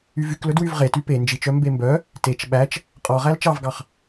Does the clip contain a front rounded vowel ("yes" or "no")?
yes